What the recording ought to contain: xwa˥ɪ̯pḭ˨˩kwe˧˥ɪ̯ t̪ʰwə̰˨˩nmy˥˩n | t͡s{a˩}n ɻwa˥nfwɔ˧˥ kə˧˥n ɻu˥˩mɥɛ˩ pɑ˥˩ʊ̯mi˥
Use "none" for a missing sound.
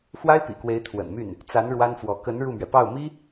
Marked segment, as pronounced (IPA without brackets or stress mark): a˧˥